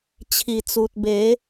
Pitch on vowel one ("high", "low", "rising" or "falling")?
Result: low